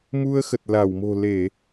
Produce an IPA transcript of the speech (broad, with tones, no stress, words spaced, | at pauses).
mu˧ə̯xə˨˩t̚ la˧˩wmo̤˨˩ le˧˩˨